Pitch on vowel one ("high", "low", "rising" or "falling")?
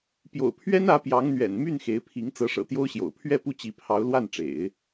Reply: low